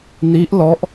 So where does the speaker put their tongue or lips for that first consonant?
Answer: tongue tip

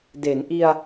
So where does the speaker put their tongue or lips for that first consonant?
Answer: tongue tip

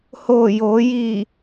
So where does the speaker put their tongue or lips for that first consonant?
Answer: throat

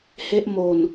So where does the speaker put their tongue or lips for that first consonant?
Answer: throat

